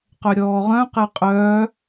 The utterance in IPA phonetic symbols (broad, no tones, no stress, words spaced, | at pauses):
qœɾʲɔːʁœ̃ qɛqʼœː